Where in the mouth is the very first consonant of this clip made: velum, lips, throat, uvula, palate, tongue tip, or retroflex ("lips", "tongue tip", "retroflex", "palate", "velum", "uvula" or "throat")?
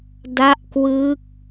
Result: tongue tip